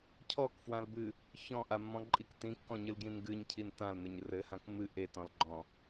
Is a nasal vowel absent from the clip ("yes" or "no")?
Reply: no